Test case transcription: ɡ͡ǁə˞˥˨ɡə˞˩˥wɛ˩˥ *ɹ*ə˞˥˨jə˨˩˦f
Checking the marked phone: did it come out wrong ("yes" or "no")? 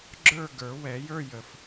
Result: yes